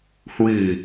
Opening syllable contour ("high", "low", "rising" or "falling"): low